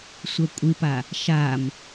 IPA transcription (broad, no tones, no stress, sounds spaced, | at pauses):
sʷ ɜ kʷʼ ɨ p a | ʃ a m